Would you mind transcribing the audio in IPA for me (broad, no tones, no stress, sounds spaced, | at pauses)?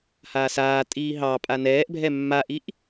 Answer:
h aː s aː tʼ iː ɦ ɑ pʼ a n ɛː ʔ bʱ ɛ mː a ʔ i ʔ